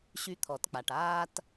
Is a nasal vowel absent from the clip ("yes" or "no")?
yes